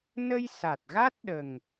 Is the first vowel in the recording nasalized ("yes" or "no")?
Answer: no